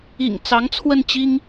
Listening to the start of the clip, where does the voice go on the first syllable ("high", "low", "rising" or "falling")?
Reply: low